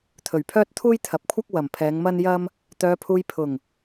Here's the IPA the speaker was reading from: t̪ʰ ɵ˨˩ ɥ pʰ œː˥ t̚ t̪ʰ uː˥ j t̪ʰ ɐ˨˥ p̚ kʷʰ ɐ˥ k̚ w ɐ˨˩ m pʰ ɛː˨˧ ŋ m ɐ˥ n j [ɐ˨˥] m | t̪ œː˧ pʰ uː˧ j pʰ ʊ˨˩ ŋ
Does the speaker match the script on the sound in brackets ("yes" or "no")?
no